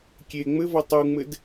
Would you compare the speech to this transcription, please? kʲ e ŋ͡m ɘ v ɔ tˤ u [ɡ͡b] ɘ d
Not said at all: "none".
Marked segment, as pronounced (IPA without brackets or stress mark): ŋ͡m